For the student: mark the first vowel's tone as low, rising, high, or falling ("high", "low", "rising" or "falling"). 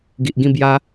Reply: low